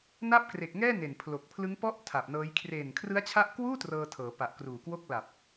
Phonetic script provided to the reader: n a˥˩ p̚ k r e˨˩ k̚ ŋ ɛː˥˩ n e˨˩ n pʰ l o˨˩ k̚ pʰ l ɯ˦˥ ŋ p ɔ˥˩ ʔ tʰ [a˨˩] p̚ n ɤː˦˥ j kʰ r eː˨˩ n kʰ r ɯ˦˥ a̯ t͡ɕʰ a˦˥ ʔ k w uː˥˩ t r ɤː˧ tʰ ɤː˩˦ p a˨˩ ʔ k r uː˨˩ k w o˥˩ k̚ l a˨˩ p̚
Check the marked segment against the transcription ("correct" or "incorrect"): correct